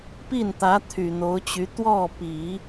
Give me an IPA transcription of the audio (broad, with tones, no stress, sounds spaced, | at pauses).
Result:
p i˥˩ n t̪ ä˧˥ t̪ʰ y˨˩ n̪ o˧˥ ʊ̯ t͡ɕ y˧˥ t̪ w ɔ˥˩ p i˨˩˦